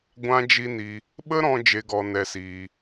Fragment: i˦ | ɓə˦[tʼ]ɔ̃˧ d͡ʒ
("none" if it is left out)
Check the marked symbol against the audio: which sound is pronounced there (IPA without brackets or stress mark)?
ɾ